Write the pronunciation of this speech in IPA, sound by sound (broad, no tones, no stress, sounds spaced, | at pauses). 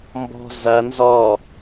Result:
m b ɔ̤ z ɐ n z ɔ